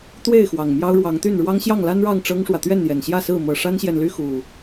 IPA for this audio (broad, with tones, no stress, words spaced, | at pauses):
t̪we˥˨ɪ̯ xwɑ˨˩ŋmjɑ˦ʊ̯ɻwɑ˨˦ŋt̪y˥˨n ɻwɑ˦ŋɕjɑ˥˨ŋla˦nɻɑ˥˨ŋ ʈ͡ʂɤ˦ŋʂwä˨ t̪ɥɛ˥˨njɛ˨˩nɕjä˥˨ sɹ̩˥˨ mɤ˨˩ ʂa˦nɕjɛ˨nly˦ xu˨˩